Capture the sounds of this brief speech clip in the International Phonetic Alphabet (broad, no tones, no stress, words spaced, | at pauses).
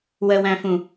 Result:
wəwæ̃fũ